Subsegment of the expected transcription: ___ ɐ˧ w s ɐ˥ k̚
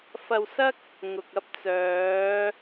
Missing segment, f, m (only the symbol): f